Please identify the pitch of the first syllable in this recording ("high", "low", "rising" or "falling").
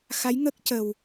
rising